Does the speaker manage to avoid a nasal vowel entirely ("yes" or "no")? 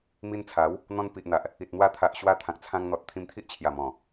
no